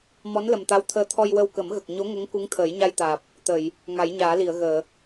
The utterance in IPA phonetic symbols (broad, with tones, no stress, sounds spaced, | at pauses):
m ɔ˧˥ n l ə˨˩ m t̪ a˧˥ w t̪ʰ əː˧ t̪ʰ ɔ˧ j w ə˧ w k ə˨˩˦ m ɣ ə˨˩ k̚ ɲ o˧˥ ŋ ə˧˥ ŋ k u˧˥ ŋ t̪ʰ əː˨˩˦ j ɲ a˧ j t̪ aː˨˩ p̚ | t̪ ə˨˩˨ j | ŋ a˨˩˦ j ɲ aː˨˩˦ l i˨˩˨ ə̯ ɣ əː˨˩˨